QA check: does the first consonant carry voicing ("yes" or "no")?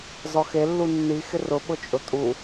yes